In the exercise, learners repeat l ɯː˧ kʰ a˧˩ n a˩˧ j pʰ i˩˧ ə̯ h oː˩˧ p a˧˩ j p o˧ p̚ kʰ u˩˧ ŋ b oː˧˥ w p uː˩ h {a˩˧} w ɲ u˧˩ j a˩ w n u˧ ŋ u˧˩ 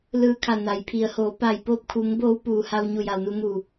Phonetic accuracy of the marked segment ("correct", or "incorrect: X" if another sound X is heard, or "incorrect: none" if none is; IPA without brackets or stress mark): incorrect: a˧